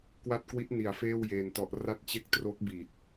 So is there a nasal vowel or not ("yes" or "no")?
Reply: no